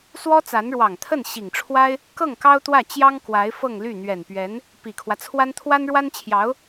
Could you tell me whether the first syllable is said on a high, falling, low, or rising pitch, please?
high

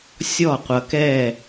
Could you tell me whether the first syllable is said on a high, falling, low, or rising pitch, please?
falling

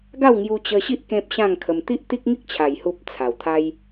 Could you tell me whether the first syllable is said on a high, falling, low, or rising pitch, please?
falling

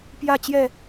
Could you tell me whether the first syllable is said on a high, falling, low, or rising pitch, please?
falling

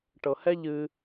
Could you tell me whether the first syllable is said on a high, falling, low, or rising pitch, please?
low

